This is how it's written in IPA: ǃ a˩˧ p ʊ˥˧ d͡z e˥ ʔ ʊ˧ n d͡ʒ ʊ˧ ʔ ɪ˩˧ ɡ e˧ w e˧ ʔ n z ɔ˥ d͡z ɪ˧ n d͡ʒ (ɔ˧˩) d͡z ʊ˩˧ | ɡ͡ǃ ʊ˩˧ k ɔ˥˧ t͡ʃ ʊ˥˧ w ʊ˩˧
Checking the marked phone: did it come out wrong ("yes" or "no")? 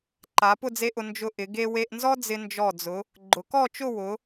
no